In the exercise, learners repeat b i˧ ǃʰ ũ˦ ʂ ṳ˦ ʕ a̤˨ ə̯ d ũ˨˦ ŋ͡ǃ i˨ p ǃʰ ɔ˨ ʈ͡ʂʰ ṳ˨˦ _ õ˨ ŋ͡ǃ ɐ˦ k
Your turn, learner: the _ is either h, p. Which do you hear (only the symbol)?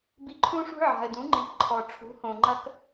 h